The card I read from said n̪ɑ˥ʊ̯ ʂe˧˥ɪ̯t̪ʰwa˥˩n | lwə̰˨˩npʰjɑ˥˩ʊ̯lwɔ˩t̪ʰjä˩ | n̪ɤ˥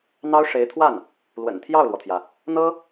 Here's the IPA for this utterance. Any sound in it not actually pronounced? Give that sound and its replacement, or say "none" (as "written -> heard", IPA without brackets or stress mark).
pʰ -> t̪ʰ